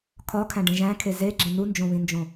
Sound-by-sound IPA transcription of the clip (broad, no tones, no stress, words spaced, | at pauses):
kʰɒkʰæ̃ɖẽ ʒæ̃kʰe zeɡ͡ǁẽ nund͡ʒõβĩnd͡ʒõ